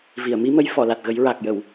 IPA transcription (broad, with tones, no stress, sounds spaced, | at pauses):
v i˨˩˨ ə̯ m i˧˥ m ə˧˥ j f ɔ˨˩˨ l a˨˩ t̚ ɣ ə˨˩˦ j ɹ a˨˩ k̚ j ə˨˩˨ w